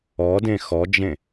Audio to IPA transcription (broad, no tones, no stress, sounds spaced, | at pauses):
ɔ d ẽ x ɔ d͡ʒ ẽ